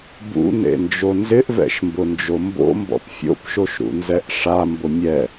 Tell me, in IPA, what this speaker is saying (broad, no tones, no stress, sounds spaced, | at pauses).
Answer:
b ṵ n ḛ n d͡ʒ o n z ɪ ʔ v ɛ̰ ʃ m b ʊ n d͡ʒ o m b o̰ m b ɔ̰ p fʲ o̰ p ʃ o ʃ ɾ ṵ n z ɛ ʔ ʂ a m b ʊ mʲ ɛ